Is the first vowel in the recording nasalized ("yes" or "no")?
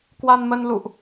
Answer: no